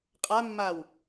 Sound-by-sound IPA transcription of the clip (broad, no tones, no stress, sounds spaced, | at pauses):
qʼ a mː a w